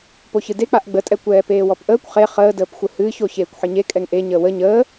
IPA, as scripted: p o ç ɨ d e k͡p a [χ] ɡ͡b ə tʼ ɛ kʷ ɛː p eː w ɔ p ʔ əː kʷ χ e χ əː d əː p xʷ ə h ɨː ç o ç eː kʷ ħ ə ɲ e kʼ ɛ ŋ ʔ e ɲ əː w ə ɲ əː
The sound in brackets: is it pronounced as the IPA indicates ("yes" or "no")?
no